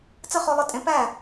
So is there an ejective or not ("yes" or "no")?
yes